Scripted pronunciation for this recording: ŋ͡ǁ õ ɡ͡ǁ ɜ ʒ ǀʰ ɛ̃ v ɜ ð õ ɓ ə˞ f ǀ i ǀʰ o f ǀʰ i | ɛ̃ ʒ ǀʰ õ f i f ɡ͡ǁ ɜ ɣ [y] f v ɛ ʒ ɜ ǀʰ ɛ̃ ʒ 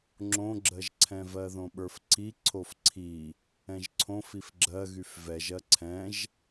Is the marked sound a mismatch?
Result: no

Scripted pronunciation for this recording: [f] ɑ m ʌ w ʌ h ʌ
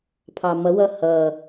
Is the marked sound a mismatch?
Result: yes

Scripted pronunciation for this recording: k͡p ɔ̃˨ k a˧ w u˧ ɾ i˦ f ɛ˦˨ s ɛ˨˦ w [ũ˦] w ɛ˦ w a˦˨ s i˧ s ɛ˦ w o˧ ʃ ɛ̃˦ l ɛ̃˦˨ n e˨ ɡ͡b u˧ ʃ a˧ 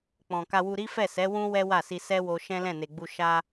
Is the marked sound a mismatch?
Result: no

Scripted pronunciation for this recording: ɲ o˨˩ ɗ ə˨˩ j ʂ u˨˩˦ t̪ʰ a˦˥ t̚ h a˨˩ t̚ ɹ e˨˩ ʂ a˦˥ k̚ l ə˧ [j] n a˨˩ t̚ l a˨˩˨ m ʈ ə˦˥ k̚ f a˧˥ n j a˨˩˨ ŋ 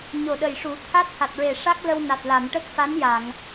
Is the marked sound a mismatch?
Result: yes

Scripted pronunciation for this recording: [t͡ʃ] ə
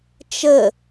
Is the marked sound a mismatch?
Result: no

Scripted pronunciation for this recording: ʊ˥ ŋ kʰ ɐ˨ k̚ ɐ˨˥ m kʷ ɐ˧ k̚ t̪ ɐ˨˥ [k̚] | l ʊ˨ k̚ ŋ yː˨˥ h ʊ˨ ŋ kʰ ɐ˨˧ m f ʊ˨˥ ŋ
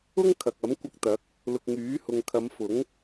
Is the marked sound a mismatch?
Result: no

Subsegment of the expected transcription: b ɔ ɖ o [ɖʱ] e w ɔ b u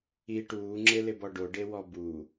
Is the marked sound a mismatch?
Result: yes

